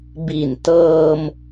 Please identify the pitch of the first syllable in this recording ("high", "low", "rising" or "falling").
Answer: low